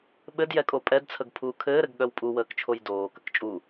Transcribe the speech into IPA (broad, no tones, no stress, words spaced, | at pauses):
ɓɘdjɛkʼo pʼɛdt͡sʰəɡpʰuː kʰɘːɾɘɡɠœw pʼuwəːkt͡ʃʰoj doːkək t͡ʃʼu